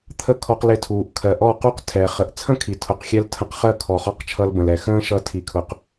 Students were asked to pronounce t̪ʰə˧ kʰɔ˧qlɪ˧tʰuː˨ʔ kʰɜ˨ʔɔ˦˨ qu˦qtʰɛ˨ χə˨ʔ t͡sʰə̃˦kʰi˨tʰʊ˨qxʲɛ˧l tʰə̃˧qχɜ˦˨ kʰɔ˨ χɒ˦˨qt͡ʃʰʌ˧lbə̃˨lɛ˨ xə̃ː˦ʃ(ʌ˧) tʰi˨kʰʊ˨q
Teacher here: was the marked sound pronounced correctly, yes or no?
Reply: yes